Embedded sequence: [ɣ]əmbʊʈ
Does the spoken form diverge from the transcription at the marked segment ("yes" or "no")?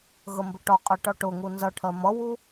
no